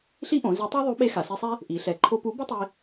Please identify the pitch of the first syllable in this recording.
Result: high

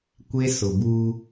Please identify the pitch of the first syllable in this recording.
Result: high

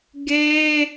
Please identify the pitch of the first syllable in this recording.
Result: high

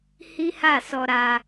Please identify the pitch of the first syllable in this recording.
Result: high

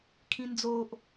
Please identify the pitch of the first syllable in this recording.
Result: high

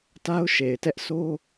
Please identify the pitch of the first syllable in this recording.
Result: high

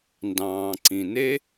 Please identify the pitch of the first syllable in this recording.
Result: low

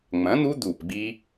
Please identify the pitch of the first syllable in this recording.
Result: rising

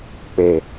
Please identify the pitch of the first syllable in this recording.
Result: low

